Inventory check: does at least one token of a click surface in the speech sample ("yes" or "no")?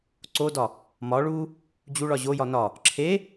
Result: yes